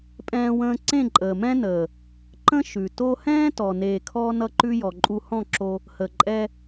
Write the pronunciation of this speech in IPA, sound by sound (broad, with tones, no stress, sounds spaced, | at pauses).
pʼ ɛ̃ː˧ w ə̃ː˧ ǀ ẽ˦˨ ǃʼ əː˨ m ɛ̃˦ n əː˨ | ǃ ə̃˦ ʃ ʉ˨ t o˧ h ɛ̃ː˦ t ɔ˨ n eː˨ kʰ ɔ˧ n ʌ˧ ǃ ʉ˧ j ɔ˨ ǃʼ u˧ h ɔ̃˦˨ ǁ o˧ | h ə˨ ǃʼ ɛ˧